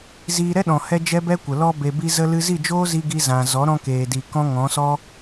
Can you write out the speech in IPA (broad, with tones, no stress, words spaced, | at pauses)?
ziː˧ɾɛ˦ɗɔ̃˨ hɛ˦d͡ʒɛ˦bɛ˦kʷə˨ lɔ˧be˨bi˧ zə˧ lɨ˦ zi˦˨d͡ʒoː˦zi˧ ɡi˧zã˨ zɔ˨˦ɾɔ̃˧keː˨di˨ kɔ̃˦ŋɔ̃˨˦sɔ˦